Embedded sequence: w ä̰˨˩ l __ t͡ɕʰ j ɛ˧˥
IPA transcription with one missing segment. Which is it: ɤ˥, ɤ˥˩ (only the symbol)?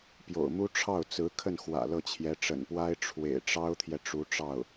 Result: ɤ˥˩